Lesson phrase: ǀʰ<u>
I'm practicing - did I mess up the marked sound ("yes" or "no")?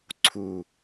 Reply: no